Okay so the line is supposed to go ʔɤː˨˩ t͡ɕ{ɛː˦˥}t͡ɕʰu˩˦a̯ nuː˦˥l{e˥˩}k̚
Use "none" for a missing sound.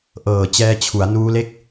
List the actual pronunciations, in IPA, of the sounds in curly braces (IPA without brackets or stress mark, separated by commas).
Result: ɛː˦˥, e˥˩